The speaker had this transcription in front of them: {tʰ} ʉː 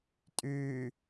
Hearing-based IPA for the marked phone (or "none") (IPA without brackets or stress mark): tʼ